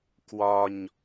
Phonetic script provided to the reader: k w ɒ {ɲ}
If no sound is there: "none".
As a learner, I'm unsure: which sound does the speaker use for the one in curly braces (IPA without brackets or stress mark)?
ɲ